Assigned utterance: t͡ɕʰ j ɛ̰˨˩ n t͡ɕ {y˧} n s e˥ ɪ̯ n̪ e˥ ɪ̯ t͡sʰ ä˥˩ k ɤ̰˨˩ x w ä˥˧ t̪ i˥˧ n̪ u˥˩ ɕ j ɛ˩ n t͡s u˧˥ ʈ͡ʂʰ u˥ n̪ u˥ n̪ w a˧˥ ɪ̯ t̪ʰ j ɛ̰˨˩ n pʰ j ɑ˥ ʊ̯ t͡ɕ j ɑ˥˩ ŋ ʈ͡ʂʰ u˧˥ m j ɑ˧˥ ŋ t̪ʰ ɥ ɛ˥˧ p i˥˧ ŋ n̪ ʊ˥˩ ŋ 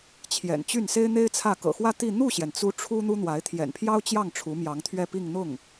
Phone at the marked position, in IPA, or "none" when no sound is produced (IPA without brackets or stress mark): y˥˩